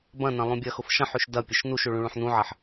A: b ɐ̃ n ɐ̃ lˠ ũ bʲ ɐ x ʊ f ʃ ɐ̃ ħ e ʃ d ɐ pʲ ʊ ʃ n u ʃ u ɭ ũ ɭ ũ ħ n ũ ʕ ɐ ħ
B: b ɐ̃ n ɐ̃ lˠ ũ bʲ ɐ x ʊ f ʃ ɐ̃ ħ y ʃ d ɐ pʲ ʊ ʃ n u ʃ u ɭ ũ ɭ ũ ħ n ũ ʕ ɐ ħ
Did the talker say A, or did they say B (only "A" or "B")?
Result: B